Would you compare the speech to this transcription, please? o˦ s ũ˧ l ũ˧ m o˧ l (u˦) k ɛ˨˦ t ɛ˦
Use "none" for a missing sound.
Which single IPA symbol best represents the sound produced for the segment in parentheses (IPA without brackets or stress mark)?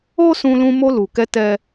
u˨